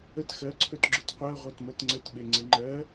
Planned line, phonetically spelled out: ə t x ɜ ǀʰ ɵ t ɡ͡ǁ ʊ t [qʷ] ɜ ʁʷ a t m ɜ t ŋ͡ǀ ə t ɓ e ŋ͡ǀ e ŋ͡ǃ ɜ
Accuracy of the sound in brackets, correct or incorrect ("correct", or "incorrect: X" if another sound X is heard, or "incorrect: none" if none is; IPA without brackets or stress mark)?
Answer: correct